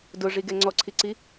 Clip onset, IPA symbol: d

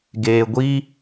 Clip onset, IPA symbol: ɡ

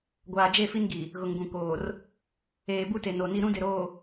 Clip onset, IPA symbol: ɡʷ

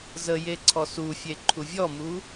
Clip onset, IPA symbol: z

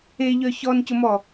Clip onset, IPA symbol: e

